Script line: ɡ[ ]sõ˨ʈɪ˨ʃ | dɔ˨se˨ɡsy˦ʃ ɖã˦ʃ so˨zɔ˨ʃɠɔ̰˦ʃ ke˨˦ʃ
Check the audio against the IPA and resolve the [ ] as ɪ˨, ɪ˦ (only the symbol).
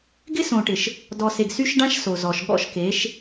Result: ɪ˦